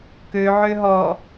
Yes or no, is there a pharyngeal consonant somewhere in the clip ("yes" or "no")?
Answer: yes